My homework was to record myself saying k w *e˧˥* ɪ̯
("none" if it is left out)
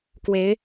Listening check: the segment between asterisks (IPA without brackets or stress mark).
e˧˥